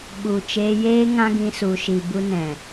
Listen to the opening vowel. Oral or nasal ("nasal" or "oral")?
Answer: oral